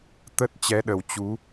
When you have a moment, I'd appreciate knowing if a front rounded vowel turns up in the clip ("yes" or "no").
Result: no